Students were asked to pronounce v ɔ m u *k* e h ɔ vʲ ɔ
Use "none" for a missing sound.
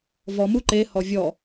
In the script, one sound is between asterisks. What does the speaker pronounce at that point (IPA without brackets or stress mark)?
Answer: ǃ